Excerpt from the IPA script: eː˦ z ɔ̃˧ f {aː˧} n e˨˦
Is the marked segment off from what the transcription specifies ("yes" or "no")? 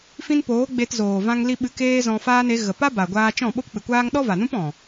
yes